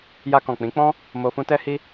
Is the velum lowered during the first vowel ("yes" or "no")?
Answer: no